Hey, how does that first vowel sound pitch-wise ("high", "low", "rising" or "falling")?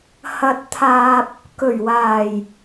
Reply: low